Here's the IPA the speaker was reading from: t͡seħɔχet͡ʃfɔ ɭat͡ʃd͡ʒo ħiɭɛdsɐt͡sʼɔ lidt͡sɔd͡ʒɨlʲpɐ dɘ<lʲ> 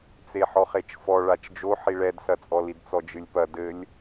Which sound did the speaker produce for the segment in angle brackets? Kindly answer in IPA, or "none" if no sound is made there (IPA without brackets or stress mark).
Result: lʲ